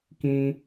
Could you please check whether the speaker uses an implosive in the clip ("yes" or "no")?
no